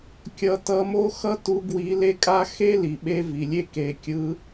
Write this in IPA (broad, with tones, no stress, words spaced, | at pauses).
kʲʌ˧tʌ˧˥mo˥ xʌ˥tu˧˥ ɡwi˧˥le˥kʼa˥ xe˥ li˩ɓe˥vi˩lʲe˥ ke˩˧kʲɯ˧˥